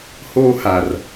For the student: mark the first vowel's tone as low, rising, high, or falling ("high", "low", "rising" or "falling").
high